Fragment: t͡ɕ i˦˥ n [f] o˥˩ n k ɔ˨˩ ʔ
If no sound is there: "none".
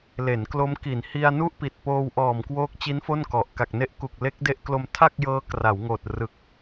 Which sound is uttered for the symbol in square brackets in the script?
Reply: f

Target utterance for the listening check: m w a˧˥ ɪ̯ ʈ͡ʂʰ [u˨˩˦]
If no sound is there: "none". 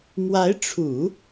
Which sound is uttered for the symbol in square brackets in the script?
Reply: u˨˩˦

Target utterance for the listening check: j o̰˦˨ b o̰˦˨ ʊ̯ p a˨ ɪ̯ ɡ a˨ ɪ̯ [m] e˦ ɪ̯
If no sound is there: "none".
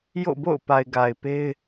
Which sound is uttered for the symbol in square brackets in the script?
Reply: p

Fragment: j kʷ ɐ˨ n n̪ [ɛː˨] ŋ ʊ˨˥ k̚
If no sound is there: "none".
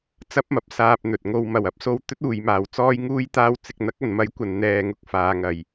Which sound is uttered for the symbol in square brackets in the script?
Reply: ɛː˨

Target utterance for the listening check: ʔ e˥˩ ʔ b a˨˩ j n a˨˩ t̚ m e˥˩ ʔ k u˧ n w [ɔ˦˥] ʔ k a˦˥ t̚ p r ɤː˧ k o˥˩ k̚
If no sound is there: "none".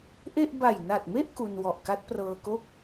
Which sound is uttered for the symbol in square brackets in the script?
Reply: ɔ˨˩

